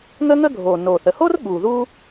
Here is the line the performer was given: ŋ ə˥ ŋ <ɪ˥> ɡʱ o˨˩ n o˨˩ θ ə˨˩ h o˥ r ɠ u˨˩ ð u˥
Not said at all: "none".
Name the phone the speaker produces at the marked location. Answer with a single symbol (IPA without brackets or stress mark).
ə˥